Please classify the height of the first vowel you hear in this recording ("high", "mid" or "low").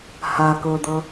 low